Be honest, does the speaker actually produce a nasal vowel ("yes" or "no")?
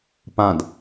yes